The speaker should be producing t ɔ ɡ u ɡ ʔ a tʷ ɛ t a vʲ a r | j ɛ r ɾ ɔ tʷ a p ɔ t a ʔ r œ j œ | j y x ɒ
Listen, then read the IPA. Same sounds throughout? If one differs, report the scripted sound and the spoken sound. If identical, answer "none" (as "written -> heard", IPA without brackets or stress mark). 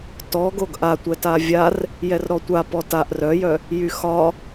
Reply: u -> o